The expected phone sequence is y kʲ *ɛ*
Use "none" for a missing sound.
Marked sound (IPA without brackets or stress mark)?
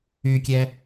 ɛ